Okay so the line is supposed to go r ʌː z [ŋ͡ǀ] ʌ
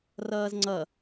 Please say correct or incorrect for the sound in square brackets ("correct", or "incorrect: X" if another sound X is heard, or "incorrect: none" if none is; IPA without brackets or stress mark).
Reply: correct